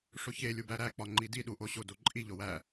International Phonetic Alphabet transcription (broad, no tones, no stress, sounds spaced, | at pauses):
ʂ o ç e lʲ u b æ ɾ æ k͡p ɒ ŋ͡ǃ i d i ɗ u ʔ o ɕ o d o ǃʼ i ʎ o w æ